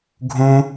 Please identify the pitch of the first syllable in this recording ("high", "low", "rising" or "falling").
high